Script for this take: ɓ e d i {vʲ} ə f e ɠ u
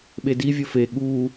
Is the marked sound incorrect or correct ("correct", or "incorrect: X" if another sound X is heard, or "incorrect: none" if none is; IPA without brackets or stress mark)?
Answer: correct